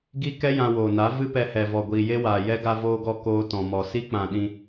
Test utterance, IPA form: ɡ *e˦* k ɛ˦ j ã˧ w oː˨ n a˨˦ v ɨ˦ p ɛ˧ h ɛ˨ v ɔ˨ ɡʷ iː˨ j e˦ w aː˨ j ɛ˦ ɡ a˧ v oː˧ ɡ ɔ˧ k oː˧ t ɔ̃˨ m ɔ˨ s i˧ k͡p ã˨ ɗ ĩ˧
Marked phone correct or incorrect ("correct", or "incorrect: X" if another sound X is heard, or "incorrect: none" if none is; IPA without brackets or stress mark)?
incorrect: i˦